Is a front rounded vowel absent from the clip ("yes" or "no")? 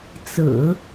yes